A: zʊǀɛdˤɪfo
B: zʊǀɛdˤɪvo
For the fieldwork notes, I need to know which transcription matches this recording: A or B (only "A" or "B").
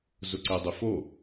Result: A